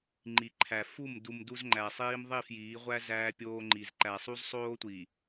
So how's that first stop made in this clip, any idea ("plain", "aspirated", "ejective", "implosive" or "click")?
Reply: click